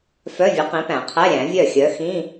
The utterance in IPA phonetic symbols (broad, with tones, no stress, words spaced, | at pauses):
fœ˧˥˧vʲɵ˨˥ qĩ˨˥pæ̃˨˩˦qʰɛ˧˥˧ ɾʲæ̃˨˩˦vʲœ˥˩xʲœ˨˥ xĩ˧˥˧